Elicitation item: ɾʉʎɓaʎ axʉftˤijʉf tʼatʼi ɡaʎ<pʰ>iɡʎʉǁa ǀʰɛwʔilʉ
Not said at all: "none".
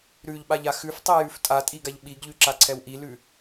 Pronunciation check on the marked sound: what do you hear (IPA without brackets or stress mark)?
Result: ɓ